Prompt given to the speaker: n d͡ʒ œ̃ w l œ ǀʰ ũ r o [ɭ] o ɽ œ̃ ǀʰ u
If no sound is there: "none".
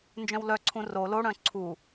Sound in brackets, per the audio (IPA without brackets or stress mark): l